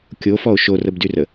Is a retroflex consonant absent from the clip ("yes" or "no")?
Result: yes